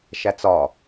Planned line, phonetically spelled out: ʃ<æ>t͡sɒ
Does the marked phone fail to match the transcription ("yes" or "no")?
no